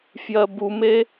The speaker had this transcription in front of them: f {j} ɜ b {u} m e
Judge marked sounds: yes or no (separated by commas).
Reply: yes, yes